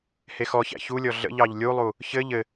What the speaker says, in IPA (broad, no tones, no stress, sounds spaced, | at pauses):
h e x ɔ ç æ̰ ç u lʲ ɔ ɮ ə̰ ʎ ɑ ʎ lʲ u lˠ u | ç ɘ ʎ ɘ